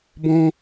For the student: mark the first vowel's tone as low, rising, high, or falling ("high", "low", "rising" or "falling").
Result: high